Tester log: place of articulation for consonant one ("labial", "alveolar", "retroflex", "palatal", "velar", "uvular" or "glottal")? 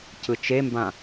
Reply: palatal